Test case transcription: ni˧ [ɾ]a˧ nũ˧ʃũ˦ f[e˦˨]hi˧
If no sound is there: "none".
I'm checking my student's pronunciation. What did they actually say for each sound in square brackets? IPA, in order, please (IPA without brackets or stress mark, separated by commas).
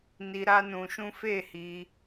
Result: ɾ, e˦˨